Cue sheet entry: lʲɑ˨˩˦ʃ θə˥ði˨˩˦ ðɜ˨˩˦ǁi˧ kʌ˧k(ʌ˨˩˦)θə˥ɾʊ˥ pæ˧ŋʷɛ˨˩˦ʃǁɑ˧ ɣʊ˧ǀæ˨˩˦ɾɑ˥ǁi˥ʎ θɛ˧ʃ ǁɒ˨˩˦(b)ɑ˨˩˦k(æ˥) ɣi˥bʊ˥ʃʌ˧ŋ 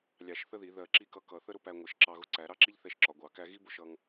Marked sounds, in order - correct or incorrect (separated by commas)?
correct, incorrect, correct